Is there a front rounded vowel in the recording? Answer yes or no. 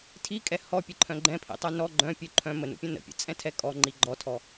yes